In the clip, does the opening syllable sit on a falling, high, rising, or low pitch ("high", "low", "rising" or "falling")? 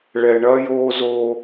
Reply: low